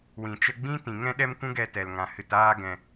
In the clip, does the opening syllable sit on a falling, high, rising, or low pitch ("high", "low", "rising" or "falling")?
low